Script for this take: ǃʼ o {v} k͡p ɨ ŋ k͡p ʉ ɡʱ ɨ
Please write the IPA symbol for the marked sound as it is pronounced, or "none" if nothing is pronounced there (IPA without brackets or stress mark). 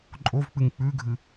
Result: v